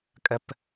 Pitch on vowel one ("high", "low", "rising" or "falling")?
low